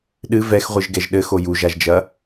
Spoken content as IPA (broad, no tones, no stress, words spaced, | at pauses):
ɗɨ vɛxʁʷɨʒɡɛʒ ɗɘxo juʒaʒd͡ʒɐ